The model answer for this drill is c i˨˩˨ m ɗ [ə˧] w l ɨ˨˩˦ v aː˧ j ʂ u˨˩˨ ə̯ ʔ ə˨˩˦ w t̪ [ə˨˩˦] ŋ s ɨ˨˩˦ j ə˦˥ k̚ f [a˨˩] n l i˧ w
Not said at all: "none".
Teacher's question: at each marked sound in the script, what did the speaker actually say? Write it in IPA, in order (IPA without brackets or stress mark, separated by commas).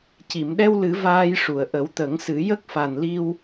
ɛ˧, ə˨˩˦, a˨˩